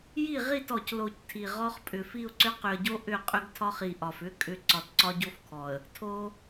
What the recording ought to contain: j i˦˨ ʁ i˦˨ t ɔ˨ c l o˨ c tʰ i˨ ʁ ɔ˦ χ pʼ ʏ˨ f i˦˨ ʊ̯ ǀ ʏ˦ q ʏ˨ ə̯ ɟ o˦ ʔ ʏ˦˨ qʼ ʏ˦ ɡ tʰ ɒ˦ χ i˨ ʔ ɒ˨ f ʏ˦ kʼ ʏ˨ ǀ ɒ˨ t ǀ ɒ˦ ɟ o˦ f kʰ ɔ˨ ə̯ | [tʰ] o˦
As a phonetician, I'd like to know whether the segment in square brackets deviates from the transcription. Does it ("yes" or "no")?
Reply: no